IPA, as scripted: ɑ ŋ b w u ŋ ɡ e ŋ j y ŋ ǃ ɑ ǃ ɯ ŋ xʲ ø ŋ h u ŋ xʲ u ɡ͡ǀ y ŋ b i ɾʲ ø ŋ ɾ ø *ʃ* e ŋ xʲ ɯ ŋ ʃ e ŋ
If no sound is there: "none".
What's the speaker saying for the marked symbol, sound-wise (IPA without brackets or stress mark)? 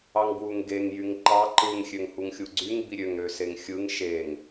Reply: s